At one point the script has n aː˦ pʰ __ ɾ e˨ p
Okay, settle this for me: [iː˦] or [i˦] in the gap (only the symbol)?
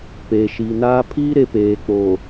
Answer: iː˦